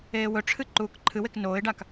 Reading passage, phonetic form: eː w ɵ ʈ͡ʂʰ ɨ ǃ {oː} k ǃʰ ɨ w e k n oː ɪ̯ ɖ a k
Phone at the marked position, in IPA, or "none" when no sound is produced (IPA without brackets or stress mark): uː